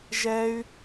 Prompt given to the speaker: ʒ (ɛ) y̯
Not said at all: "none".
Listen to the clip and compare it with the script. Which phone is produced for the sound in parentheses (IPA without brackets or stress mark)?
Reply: ɛ